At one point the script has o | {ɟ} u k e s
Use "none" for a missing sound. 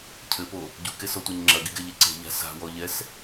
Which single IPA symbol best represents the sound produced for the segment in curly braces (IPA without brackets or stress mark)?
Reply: ɟ